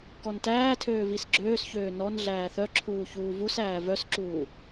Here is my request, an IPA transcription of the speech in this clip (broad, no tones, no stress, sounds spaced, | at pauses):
k ɔ n t æː tʰ øː v i s ɡ͡ǁ øː s ç øː n ɔ n ɮ æː θ œ ǁʰ uː ç uː v u s æː v œ s ǁ uː